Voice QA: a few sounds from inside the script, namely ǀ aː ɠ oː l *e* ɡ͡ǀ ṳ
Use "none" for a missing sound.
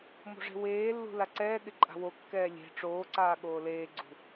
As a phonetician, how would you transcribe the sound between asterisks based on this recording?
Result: eː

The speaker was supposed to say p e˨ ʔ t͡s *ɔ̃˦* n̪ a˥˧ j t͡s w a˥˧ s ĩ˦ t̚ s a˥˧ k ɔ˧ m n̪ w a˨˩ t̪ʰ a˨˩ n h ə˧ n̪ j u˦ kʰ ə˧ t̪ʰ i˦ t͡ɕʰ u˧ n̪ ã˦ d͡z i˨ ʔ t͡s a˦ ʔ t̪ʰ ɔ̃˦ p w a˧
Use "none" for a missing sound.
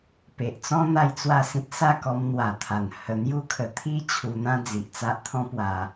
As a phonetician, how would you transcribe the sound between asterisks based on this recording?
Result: ɔ̃˦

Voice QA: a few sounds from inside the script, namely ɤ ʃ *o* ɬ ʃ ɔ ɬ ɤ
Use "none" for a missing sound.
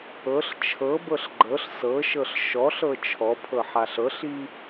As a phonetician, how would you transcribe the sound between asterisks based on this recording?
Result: ɤ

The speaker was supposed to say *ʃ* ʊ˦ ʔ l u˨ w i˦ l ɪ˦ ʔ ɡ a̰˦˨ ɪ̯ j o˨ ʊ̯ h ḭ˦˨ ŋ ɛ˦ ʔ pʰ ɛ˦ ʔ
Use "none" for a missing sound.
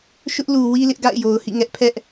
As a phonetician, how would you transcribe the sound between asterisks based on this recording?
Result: ʃ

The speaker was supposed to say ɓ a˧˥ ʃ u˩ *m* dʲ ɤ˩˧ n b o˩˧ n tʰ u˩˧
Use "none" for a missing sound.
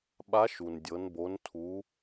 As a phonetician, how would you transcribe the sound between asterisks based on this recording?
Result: n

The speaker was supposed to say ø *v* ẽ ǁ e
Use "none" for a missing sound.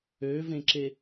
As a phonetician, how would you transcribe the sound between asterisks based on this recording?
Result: v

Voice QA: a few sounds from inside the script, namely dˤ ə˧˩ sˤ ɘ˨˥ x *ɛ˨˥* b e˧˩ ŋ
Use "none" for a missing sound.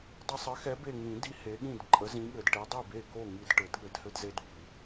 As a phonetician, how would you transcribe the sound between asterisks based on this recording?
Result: ɛ˨˥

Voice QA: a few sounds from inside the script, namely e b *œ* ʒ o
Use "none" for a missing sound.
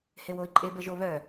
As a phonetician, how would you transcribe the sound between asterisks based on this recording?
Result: ə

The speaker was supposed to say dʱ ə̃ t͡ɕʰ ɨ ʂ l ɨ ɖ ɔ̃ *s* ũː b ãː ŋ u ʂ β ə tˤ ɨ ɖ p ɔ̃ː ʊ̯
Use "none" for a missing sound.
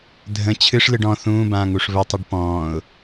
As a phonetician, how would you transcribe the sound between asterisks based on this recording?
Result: θ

